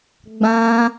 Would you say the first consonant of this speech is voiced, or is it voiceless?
voiced